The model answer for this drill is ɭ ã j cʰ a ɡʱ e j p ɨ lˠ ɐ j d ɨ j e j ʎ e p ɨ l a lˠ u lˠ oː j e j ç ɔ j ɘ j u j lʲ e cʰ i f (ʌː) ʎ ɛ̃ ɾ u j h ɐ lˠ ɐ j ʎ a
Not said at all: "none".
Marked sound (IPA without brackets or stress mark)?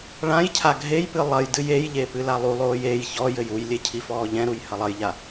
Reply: ɔː